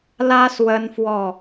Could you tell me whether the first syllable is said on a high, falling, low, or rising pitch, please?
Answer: high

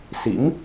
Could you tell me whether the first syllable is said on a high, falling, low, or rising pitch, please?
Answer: rising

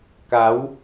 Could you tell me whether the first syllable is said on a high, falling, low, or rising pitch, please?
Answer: rising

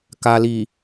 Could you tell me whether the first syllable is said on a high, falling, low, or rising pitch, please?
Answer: low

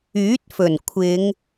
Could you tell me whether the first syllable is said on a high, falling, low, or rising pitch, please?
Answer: rising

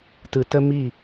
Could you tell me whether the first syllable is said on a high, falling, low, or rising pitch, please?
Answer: low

